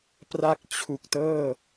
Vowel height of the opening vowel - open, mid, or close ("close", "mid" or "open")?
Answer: open